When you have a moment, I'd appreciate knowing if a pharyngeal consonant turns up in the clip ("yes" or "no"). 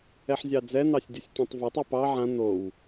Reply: yes